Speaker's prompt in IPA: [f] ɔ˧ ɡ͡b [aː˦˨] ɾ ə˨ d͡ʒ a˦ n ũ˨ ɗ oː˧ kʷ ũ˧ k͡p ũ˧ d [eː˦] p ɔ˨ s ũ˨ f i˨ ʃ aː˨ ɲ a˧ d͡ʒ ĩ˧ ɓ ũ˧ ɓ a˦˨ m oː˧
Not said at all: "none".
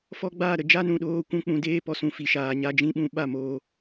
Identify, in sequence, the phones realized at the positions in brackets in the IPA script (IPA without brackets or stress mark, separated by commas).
f, aː˦˨, eː˦